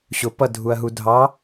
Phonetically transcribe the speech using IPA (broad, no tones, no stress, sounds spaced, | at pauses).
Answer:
ɕ ʊ p ʌ dʱ u ɐ̯ ɦ u dʱ ɑ